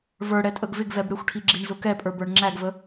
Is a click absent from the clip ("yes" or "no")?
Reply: no